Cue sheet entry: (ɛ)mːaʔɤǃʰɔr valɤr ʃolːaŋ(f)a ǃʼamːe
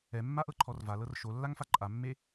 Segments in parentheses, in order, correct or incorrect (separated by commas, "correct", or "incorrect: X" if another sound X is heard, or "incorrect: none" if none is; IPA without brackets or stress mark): correct, correct